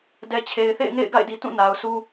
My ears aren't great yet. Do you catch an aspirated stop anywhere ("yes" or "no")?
yes